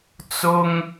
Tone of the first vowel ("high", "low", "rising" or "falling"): high